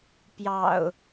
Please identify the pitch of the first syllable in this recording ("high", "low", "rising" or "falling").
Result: low